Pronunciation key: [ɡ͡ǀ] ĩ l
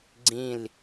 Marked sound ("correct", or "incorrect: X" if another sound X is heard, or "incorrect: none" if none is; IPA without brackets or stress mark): correct